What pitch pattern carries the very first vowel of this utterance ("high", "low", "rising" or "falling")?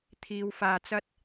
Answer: low